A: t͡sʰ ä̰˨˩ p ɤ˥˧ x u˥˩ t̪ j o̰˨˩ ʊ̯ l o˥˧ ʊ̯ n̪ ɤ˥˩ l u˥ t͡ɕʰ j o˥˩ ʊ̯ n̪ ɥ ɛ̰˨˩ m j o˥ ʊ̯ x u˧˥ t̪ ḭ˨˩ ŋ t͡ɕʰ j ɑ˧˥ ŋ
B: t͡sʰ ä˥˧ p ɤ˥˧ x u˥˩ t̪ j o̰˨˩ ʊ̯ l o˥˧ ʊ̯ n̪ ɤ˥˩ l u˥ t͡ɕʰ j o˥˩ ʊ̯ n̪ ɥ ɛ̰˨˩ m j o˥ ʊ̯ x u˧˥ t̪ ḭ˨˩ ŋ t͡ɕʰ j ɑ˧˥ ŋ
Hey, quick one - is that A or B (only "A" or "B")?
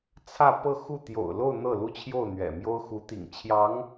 B